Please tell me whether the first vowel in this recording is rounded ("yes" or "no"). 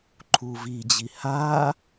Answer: yes